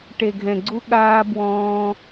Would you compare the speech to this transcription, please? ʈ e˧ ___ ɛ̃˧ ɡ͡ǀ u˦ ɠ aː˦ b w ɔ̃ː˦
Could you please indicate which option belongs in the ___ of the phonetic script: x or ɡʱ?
ɡʱ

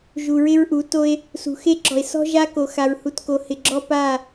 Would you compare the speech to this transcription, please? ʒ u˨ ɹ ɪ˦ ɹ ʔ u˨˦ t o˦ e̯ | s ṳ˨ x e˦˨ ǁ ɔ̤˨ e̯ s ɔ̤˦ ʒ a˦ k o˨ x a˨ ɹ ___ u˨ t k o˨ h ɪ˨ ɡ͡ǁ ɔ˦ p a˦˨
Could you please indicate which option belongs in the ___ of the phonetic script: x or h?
h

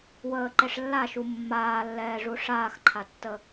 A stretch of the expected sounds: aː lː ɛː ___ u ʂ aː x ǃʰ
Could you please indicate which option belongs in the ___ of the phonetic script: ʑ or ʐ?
ʐ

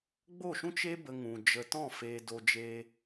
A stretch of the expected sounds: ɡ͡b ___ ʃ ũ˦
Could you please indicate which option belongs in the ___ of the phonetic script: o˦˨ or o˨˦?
o˦˨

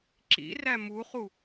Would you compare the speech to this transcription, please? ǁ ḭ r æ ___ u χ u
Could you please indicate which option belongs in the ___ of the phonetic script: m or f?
m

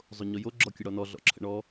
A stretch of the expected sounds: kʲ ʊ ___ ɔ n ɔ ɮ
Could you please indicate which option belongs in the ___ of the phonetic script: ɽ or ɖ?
ɽ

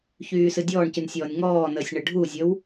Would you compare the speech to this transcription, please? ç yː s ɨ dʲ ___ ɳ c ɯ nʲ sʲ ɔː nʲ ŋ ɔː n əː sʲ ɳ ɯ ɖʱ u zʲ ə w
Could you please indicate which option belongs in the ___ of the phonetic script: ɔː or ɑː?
ɔː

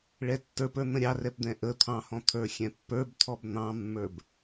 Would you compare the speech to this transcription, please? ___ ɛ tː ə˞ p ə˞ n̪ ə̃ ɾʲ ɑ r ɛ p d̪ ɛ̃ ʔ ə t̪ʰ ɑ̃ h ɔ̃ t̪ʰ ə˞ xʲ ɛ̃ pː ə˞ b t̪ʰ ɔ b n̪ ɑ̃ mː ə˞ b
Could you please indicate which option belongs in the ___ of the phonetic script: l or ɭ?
ɭ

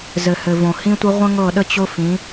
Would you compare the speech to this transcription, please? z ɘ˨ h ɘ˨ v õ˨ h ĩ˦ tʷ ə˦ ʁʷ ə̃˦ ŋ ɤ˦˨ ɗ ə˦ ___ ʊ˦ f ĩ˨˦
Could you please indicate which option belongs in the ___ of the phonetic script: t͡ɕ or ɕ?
t͡ɕ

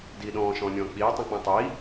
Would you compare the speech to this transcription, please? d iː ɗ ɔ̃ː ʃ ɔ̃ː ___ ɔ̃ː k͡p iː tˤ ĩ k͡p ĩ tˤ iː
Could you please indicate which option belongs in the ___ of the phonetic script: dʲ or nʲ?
nʲ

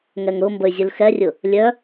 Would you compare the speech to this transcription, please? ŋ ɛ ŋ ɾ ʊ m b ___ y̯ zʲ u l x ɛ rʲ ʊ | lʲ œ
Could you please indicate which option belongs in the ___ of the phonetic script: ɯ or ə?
ə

